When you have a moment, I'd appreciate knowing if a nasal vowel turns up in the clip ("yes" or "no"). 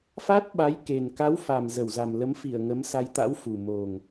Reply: no